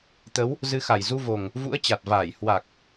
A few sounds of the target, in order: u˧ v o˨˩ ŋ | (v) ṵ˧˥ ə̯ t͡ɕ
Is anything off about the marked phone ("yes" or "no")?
no